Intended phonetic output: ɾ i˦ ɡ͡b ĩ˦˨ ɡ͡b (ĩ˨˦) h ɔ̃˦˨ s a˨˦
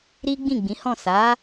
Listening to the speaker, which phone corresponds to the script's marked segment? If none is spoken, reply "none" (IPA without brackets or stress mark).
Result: ĩ˨˦